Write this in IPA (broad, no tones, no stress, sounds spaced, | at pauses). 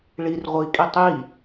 ɭ i r ʁʷ i kʼ i tˤ i